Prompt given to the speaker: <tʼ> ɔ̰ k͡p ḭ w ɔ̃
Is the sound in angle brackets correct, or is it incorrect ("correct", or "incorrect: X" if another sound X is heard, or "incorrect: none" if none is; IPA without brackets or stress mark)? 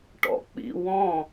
incorrect: ʈ